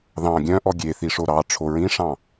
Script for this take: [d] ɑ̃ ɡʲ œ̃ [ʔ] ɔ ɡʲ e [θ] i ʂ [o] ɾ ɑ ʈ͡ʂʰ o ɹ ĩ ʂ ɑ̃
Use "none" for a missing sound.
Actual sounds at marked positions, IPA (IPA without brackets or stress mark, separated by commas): ð, ʔ, θ, o